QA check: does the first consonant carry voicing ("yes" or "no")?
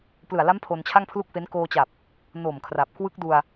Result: no